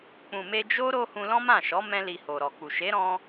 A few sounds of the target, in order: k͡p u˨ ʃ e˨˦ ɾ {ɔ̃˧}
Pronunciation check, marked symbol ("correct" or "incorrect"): correct